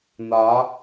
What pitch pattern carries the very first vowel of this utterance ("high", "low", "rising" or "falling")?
rising